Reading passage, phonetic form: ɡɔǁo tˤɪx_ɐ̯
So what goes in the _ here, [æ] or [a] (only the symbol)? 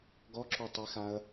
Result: a